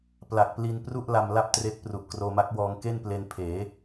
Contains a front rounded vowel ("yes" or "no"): no